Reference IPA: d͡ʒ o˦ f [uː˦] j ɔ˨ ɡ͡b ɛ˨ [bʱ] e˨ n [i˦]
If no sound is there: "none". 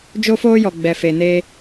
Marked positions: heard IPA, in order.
oː˦, f, e˦

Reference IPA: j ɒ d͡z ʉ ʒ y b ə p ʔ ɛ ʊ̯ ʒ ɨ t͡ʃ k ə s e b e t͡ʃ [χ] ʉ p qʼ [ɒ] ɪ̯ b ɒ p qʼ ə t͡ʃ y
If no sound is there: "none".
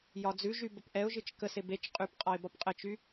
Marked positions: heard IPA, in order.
qʼ, ɒ

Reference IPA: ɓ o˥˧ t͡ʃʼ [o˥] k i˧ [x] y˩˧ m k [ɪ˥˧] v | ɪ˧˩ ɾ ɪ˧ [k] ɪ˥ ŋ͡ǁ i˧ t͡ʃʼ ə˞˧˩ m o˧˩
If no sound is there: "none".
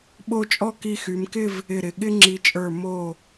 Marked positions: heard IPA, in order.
ɔ˥, x, ɪ˥˧, ɠ

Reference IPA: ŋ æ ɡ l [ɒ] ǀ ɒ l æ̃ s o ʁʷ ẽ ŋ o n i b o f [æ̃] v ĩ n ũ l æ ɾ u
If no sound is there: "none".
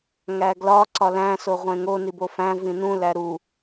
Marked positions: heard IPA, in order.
ɒ, æ̃

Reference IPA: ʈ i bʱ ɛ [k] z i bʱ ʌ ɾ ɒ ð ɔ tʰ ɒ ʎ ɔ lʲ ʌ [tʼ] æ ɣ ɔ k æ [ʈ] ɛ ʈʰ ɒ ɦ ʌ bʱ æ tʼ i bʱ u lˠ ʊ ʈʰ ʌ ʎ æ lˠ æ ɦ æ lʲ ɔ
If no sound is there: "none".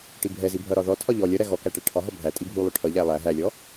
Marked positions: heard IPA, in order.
none, ɾ, ʈ

